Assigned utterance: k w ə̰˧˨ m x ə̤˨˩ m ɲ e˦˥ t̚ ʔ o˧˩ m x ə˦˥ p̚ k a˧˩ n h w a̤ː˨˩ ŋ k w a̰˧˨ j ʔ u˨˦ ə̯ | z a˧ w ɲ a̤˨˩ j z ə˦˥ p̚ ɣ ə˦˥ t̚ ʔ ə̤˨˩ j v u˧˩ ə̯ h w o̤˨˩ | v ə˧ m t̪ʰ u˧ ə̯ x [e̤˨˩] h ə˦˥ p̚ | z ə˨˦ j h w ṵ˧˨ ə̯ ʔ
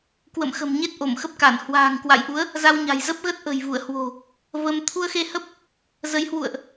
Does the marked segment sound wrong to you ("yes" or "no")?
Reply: yes